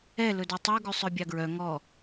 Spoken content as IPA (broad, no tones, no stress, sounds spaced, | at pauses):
ɛ l ɵ d ɵ tˤ u ɡ ʉ sˤ œ bʲ ɑ ɡ ɹ œ ŋ ɔ